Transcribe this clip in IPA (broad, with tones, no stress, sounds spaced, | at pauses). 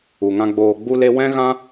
u˨ ŋ ã˧ ɡ͡b oː˨ ɡ͡b u˧ l e˧ w ɛ̃˦ ɣ ã˦